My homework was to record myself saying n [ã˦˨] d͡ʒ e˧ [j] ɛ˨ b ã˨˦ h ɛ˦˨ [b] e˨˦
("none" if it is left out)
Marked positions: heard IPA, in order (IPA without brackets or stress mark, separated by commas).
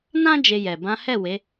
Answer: ã˦, j, w